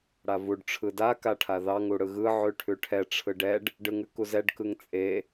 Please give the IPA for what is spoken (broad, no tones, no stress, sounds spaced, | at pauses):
ɽ a v u ɖ ʈ͡ʂʰ ɯ d a k a ʈʰ a ð ɑ ŋ u ɽ ɯ ɣ ɯ ʕ ʉ ʈʰ ʉ ʈʰ ɛ ʈ͡ʂʰ ɯ ɖ ɛ ɖ | ɖ ɯ ŋ ʉ k u z ɛ ɖ k ɯ ŋ t͡sʼ e